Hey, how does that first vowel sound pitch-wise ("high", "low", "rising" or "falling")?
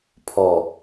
low